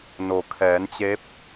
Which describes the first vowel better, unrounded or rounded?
rounded